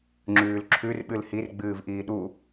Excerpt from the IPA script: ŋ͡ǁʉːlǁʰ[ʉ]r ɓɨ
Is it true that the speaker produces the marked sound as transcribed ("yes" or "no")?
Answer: yes